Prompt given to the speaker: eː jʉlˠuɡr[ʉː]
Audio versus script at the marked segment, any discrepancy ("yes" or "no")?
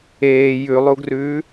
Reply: no